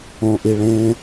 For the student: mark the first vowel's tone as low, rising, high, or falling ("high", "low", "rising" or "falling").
low